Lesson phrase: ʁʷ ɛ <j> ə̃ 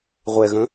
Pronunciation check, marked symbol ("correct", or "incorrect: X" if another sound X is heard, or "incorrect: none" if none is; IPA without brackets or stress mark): incorrect: ɣ